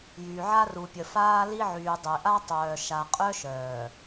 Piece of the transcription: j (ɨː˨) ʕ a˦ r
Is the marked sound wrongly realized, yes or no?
yes